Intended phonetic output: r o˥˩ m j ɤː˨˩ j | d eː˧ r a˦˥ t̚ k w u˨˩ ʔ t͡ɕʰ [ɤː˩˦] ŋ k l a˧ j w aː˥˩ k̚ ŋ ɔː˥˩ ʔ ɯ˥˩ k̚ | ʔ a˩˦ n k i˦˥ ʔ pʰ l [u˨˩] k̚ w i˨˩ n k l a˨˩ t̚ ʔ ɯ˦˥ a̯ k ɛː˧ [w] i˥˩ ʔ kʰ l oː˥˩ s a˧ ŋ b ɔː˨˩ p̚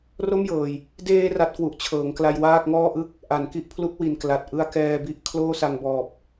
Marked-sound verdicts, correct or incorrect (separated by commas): correct, incorrect, incorrect